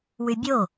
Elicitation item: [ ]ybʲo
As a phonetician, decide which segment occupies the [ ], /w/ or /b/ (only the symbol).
w